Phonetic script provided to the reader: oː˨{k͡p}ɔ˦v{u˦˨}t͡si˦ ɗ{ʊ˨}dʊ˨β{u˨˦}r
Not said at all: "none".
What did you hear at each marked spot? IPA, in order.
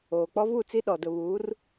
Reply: k͡p, u˦˨, ɔ˨, uː˨˦

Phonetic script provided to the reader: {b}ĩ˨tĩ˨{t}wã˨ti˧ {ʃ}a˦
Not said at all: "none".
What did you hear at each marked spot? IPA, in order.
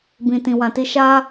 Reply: b, none, ʃ

